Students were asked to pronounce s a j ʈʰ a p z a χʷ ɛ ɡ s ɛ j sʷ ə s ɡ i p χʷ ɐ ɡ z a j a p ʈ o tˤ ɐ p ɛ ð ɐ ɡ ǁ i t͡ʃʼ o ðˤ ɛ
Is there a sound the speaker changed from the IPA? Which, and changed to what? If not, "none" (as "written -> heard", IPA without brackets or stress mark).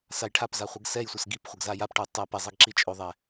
ð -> zˤ